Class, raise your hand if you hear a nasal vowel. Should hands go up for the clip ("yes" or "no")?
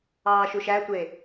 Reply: no